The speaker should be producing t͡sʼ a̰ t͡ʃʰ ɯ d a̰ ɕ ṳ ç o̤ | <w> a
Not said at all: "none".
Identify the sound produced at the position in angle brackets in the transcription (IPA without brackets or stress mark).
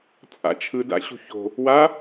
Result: w